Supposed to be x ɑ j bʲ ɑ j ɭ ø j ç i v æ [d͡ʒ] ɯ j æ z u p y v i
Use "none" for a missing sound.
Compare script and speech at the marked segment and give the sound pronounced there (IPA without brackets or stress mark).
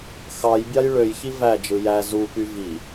d͡ʒ